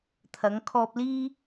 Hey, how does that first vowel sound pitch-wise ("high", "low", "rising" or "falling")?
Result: rising